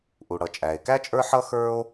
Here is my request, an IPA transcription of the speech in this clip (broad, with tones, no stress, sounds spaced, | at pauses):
ʔ u˩ ɽ ʌ˩ t͡ʃʼ æ˩ e̯ k æ˥ t͡ʃʼ ə˞˥ ħ ʌ˥ x ə˞˥ o̯